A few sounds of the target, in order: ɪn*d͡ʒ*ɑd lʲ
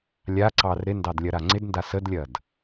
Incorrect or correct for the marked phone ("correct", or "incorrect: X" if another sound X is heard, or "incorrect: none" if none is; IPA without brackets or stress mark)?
incorrect: d